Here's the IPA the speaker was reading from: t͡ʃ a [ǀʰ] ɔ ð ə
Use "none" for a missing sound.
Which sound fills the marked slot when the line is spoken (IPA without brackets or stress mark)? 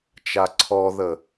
ǀʰ